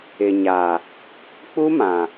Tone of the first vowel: low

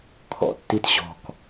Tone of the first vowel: low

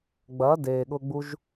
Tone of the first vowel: rising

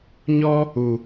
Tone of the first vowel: high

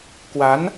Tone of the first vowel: rising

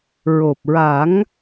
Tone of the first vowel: low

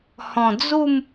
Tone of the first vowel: low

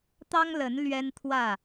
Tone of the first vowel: high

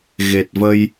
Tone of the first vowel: low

